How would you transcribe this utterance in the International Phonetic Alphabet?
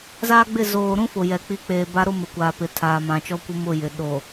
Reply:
z aː˦ ɡ͡b ɪ˦˨ z oː˨ ɾ ũ˦ f ʊ˨ j ɛ˨ k͡p i˨˦ k͡p eː˨ b a˦ ɾ o˦ m ɪ˨ kʷ aː˨ p ɪ˨ tʰ aː˨ m ã˨ t͡ʃ ɔ˦ kʷ ɪ˦ m ʊ˦˨ j ɪ˨ ɗ o˨

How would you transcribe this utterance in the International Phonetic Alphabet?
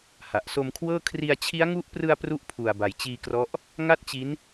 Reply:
h a˨˩ ʔ s o˧ m kʰ w ɤː˥˩ kʰ r i˧ a̯ t͡ɕʰ i˦˥ a̯ ŋ u˦˥ ʔ p r ɯ˧ a̯ p r u˦˥ ʔ pʰ u˨˩ a̯ b a˨˩ j t͡ɕ iː˧ k r ɔ˦˥ ʔ | ŋ a˥˩ t̚ t͡ɕ i˦˥ n

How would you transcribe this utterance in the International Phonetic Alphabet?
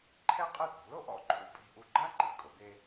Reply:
ǃʰ ɛ˥ qʼ ɨ˥˩ t̪ ṳ˩˥ l o˧ ʔ ɔ̰˥˩ ǃʰ ṵ˧ pʼ i̤˧ ʔ u˧ ɡ͡ǃ a˥ ǃ ḭ˩ kʼ o˩˥ d̪ e˥

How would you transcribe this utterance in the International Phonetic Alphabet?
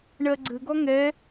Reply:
ɳ ɜ ɡ͡ǀ ɘ ɡ ɔ ŋ ɛ

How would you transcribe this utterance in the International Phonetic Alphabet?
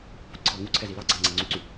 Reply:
p u ǀʰ ɑ ŋ u ǀʰ ɛ z i l ɑ ɡ͡ǀ a ŋ͡ǀ ɛ ŋ͡ǀ y ǀ y

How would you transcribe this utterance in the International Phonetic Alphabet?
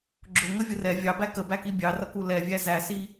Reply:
ɡ͡ǁ ʊ ŋ ə vʲ ə r ɛ vʲ ɑ b æ k ə b æ k i bʲ ɑ r ʌ k u l ɛ vʲ æ z æ s i

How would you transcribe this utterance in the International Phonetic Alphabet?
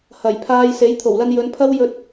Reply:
h ɐ˨˩ j pʰ aː˧ j s e˨˥ j t̪ʰ o˨˩ w l ɐ˧ n j ɵ˨˧ n pʰ ɐ˥ w j ɵ˧ t̚

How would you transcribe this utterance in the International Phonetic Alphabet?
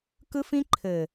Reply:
k ɯ˦ f ĩ˦ ǃʰ ɘ˨

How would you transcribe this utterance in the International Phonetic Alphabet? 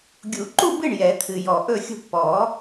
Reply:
ɡʲ u˨˩˦ ǃ u˥˧ b ɨ˥˩ ɳ j ɛ˨˩˦ t̪ʰ ɨ˨ j ɔ˨ ʔ ɵ˥˩ xʲ ṳ˥˩ ʈ p ɔ˨˩˦

